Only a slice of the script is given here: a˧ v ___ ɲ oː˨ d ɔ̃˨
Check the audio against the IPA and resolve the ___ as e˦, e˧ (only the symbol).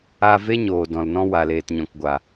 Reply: e˦